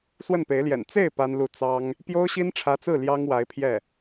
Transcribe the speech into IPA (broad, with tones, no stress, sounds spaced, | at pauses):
s w ə˥˩ n p e˧˥ ɪ̯ l j ɛ̰˨˩ n t͡s e˥˩ ɪ̯ p a˥ n l u˥˩ t͡s ɑ˥ ŋ | p j o˥ ʊ̯ ɕ i˥ n ʈ͡ʂʰ ä˧˥ t͡s ɹ̩˥˩ l j ɑ˥ ŋ w a˧˥ ɪ̯ pʰ j ɛ˥˩